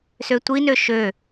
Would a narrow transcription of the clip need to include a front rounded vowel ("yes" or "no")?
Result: yes